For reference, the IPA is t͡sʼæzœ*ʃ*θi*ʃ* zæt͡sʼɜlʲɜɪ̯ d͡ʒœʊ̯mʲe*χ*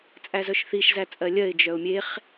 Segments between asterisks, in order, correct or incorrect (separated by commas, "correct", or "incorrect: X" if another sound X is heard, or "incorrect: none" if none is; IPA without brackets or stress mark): correct, correct, correct